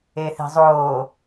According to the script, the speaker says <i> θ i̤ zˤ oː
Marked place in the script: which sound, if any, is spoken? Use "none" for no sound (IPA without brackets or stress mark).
e